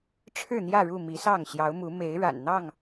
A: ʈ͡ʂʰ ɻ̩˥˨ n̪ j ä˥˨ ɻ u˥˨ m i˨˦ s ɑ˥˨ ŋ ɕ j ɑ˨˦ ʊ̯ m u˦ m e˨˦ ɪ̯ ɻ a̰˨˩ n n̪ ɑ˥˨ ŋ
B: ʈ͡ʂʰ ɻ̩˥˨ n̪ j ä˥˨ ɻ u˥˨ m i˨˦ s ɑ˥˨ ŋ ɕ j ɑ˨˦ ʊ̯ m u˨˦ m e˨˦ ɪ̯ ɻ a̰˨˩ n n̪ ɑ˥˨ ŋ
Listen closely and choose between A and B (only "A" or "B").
B